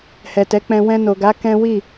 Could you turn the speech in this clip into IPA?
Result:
h ɛ˨ t ɛ˨˦ k͡p ɛ̃˧ w ɛ̃˧ n o˨ ɡ a˨˦ k ɛ̃˦ w i˦˨

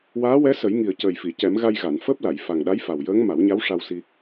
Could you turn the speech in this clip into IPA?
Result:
w aː˧˥ w ɛ˧˥ s ə˨˩˦ j ŋ i˨˩ ə̯ c əː˨˩ j f i˨˩˨ c ɛ˨˩˦ m ɣ a˧ j ɣ a˨˩˨ n f əː˦˥ p̚ l a˨˩˨ j f a˨˩ ŋ ɗ a˧˥ j f a˨˩ w j əː˧˥ ŋ m a˨˩˦ w ɲ a˧˥ w ʂ a˧ w s i˧

